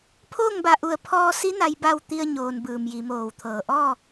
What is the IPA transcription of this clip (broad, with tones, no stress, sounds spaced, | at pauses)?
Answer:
pʰ oː˥˨ ŋ b a˧˩ ʔ u˧˩ ə̯ pʰ ɔː˧ s i˧˥ n a˧˥ j b a˥˨ w t̪ i˧ ə̯ ɲ oː˩ n b ɯː˩ m j i˩˧ m oː˧˩ w t̪ʰ ɤː˧˩ ʔ ɔː˥˨